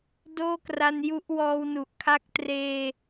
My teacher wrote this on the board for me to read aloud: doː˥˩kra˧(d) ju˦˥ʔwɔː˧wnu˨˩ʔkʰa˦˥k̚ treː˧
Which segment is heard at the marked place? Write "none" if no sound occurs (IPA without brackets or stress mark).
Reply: n